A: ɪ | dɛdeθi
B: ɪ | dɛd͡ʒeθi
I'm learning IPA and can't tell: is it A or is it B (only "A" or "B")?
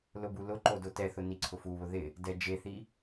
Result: B